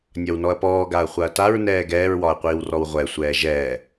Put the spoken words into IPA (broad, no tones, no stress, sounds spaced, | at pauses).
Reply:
nʲ ɒ w n ɔ ɐ̯ p ɔː ɡ a ɐ̯ χʷ a ɐ̯ t a ɹ n ɛː ɡ ɛː ɹ w ɒ ɐ̯ qʷ iː w r ɔ w ʁʷ ɛ sʷ ɛː ʒ ɛː